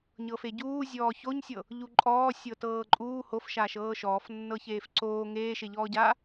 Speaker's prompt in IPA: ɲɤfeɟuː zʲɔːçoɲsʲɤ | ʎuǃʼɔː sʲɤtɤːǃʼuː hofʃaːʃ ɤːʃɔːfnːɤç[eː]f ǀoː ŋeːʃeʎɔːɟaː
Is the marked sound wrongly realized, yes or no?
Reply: no